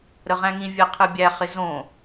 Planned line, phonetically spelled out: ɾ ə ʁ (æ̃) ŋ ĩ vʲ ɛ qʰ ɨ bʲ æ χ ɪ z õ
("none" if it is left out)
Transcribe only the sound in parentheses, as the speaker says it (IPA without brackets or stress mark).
æ̃